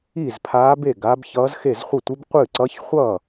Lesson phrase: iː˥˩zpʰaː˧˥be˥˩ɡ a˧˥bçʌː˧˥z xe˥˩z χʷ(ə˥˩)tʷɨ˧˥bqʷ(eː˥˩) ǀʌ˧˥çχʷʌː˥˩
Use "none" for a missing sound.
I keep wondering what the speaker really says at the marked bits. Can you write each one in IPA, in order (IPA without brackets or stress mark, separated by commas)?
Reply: ʌ˥˩, ɨː˥˩